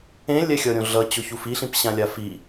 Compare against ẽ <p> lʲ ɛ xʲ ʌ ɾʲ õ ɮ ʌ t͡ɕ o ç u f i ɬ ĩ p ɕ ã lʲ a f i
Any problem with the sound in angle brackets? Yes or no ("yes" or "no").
yes